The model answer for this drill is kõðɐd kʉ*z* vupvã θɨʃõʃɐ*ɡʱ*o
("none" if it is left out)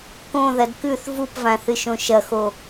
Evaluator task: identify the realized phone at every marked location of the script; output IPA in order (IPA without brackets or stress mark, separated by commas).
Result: θ, x